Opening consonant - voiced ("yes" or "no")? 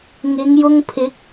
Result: yes